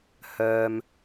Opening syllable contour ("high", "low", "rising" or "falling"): low